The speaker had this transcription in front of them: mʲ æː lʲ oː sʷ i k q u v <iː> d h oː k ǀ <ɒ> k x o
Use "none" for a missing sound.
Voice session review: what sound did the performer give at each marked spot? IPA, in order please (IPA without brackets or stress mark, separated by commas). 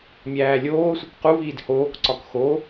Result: iː, ɒ